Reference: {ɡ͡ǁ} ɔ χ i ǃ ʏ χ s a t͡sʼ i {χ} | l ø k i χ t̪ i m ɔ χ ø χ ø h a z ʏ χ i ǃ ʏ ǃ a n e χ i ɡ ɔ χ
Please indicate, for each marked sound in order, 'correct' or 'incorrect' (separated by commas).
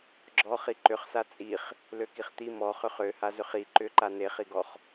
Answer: correct, correct